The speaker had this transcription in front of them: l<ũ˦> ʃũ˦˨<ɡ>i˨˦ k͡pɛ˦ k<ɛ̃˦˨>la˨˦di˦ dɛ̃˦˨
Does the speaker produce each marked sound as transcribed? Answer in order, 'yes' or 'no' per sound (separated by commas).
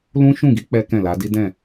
yes, yes, yes